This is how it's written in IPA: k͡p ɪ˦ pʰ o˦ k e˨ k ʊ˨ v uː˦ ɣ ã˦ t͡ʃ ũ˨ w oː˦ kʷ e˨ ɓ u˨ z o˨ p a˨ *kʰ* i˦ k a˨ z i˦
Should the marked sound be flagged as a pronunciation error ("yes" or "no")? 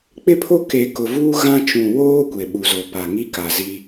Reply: yes